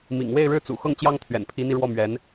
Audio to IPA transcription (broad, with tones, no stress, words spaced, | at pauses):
mḭ˨˩ŋ we˥˧ɪ̯ɻɻ̩˥˩t͡sṵ˨˩xɤ˥˩ŋ t͡ɕjɑ˥ŋt̪ʰɥɛ̰˨˩npʰi˧˥n̪i˧ ɻwɔ˥˩mɥɛ˧˥n